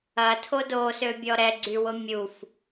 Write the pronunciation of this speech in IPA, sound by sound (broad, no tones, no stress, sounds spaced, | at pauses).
ɐ tʰ o d o s ø bʲ ɔ ɾ ɛ ɡ͡ǀ y w ʊ mʲ u f